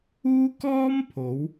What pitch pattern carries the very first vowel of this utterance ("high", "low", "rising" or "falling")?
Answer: high